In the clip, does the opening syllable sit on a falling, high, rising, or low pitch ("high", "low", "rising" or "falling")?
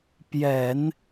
low